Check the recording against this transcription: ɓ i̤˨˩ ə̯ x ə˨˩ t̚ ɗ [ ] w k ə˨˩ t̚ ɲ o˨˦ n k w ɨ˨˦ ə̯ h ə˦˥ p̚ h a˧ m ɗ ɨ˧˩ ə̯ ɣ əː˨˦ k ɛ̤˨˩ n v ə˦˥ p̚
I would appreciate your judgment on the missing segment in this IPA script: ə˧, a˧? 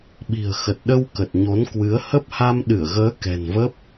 ə˧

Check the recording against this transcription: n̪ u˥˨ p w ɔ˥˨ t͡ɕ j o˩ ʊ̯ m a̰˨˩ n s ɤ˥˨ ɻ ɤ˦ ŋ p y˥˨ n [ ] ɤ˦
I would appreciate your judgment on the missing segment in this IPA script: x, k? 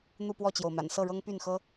x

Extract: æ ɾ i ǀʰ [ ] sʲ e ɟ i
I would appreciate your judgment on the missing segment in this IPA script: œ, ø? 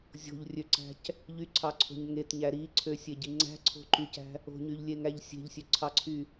ø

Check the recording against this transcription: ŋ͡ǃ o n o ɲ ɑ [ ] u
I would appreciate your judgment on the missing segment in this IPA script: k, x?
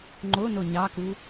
k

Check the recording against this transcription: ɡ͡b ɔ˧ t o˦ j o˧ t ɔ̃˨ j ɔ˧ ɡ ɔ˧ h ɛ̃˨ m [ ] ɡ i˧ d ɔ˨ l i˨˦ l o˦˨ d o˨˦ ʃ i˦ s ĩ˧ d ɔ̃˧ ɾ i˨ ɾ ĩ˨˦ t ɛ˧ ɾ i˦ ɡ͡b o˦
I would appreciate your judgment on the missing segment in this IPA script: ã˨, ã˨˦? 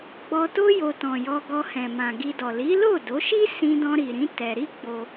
ã˨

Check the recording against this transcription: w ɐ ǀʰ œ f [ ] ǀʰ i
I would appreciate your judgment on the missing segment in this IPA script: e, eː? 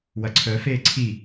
eː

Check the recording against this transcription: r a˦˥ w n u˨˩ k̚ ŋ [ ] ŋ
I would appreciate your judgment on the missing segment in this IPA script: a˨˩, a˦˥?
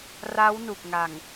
a˨˩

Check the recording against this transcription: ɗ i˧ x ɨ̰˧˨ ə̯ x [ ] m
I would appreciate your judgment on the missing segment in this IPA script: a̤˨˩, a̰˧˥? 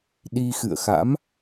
a̰˧˥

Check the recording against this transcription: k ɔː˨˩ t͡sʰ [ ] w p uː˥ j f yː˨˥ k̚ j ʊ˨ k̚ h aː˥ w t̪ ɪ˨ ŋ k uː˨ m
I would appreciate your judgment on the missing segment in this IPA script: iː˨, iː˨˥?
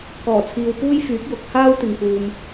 iː˨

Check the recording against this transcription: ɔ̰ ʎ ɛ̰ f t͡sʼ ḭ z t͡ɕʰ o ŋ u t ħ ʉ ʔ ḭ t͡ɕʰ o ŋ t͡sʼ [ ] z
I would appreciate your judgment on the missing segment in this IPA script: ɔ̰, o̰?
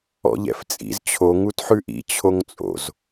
o̰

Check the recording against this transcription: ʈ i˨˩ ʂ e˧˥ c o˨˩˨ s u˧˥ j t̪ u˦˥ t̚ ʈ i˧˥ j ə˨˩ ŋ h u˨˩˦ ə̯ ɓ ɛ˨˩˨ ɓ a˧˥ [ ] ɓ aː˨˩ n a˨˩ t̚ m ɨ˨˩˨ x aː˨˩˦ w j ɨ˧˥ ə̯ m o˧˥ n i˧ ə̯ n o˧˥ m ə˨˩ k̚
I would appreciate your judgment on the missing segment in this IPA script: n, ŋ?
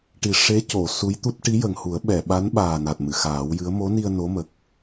n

